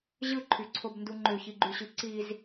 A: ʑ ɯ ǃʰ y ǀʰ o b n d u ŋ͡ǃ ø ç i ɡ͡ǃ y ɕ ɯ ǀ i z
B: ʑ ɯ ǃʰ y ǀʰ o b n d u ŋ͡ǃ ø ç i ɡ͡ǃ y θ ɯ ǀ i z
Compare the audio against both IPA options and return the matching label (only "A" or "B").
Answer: A